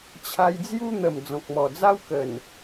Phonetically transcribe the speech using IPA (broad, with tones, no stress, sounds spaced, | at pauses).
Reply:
t͡ɕʰ a˧ j d͡z j u˦ n̪ ə˨˩ m d͡z ɔ̃˨ k̚ m ɔ˨˩ d͡z a˦ w k ə˨˩ n